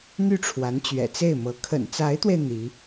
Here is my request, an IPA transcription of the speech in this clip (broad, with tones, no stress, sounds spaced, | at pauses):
n̪ y˥˩ ʈ͡ʂʰ w a˧˥ n t͡ɕ ɥ ɛ̰˨˩ t͡s e˥˩ ɪ̯ m ɤ˧˥ kʰ ə̰˨˩ n t͡s a˧˥ ɪ̯ t̪ w e˧ ɪ̯ n̪ i˧˥